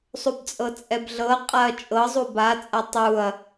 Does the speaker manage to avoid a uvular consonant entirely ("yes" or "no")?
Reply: no